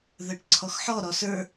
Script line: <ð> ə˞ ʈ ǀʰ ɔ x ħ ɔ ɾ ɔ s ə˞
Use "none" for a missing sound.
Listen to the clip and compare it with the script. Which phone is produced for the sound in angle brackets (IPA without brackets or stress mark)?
ð